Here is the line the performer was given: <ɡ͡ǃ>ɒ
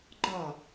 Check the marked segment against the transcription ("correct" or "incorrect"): correct